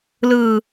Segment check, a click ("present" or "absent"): absent